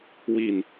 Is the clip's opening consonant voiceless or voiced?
voiced